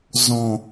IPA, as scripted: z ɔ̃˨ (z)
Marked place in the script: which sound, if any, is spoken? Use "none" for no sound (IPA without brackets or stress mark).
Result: none